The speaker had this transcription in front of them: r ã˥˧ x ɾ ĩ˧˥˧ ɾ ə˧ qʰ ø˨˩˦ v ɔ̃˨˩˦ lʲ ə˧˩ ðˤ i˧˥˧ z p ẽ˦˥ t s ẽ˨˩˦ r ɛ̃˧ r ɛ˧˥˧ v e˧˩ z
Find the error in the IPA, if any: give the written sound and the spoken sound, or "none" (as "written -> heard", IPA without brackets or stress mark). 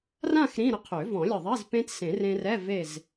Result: ɛ̃˧ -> ẽ˧